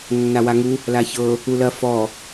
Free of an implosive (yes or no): yes